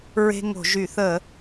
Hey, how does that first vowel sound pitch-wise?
high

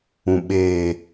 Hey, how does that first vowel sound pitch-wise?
low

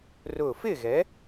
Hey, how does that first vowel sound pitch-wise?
falling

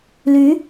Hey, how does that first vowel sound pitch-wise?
rising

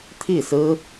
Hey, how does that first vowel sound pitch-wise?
falling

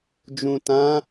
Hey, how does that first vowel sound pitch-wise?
low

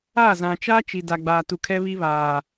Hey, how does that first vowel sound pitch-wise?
falling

